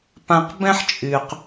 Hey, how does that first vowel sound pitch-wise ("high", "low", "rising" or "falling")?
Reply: low